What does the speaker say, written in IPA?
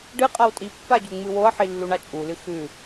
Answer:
ɖ ɨ qʼ a w tʼ i pː a ɟ u ŋ͡m ɨ w o ɐ̯ ħ i lː u ɳ a t͡ʃʼ u l ɨ x ʉ

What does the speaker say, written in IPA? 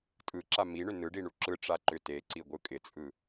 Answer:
tʼ ɯ ǁ a m i ɳ ʏ n ɯ ɖ i ɳ u ǁ ɯ ʈ͡ʂ a ǃ ʏ t e ǀ i ɡʷ ɯ kʼ ɪ t͡sʼ ɯ

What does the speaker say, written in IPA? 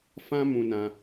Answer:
f ã˦ m ũ˧ n ã˧

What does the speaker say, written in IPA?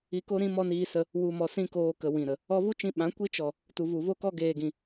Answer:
i˧ k o˦ ɾ ĩ˦ m ɔ˦ n iː˧ s ə˧ | w u˧ m ɔ˧ s ĩ˦ k oː˧ k ə˨ w ĩ˨ ɾ ə˨ | ɔ˧ v u˦ t͡ʃ ĩ˧ ɓ ã˨˦ kʷ i˦ t͡ʃ ɔ˨ | t u˨ v u˨ v o˦ k ɔ˦ ɡ eː˨ ɡ ĩ˨

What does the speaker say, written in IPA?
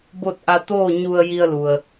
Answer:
b o˥˨ t̚ ʔ a˧ t̪ oː˥˨ ɲ u˧ ə̯ j i˧ ə̯ l u˩ ə̯

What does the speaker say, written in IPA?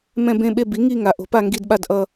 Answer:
m ɛ̃˦˨ b ẽ˦˨ ɓ e˦˨ b i˩˥ ŋ i˦˨ ŋ a˩˥ ʔ o̤˩˥ p a˦˨ ŋ ɡ i˦˨ d ɓ a˦˨ d ʔ ʌ˦˨

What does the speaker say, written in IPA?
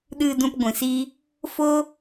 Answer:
ɗ ɨ˨ d ũ˨ p ɡʷ ĩ˨ s iː˦ | f oː˦

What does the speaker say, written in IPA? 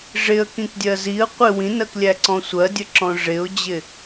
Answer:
ʐ ɪ ə̯ k ĩ k dʲ ɜ z i ə̯ qʷ ɪ w ĩ n ɜ k lʲ æ ǀ ɔ̃ sʷ ɜ dʲ ə ǁ ɔ̃ ʐ ɪ ʊ̯ d͡ʑ ɪ

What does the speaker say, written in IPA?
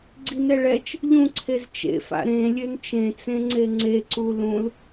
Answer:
ɡ͡ǀ i n ɛ ɭ ɛ t͡ʃ | ʎ ũ ǀʰ e z t͡ʃ ḛ f a̰ ɾ ẽ lʲ ø n t͡ʃ ẽ t͡s ẽ ŋ͡ǀ e ŋ͡ǀ e ǀ u l ũ l

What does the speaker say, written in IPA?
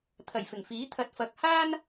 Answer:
t̪ʰ ɐ˨˩ j f ɪ˨˩ ŋ f iː˨˥ t̪ʰ ɐ˨ t̚ f ɐ˨ k̚ h aː˥ n

